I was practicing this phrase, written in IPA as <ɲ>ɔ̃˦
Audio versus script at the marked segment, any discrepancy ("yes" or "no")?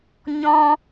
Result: no